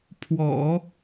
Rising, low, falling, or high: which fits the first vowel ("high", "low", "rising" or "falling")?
low